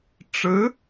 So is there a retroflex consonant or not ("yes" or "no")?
yes